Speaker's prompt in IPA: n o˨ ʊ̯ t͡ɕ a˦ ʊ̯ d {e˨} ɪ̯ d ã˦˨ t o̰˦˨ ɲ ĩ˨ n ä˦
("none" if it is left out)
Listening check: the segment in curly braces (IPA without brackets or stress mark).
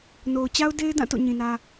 e˦